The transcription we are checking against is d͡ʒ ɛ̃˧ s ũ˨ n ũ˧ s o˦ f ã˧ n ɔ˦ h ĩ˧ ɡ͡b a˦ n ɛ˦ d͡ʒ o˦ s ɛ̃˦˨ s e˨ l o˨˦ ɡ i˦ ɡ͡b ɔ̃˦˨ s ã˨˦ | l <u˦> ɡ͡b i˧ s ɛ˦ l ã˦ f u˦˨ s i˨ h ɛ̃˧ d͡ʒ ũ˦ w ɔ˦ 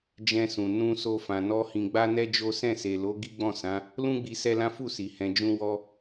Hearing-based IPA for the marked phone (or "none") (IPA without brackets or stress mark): ũ˦